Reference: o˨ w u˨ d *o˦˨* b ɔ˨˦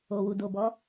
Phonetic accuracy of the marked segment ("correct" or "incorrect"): incorrect